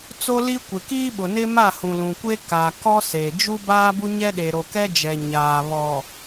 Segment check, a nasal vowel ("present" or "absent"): present